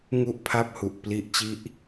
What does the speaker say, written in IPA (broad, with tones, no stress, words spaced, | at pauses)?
ŋu˥˩ʔpʰa˥˩p̚hu˨˩ʔ pli˦˥ʔt͡ɕi˦˥ʔ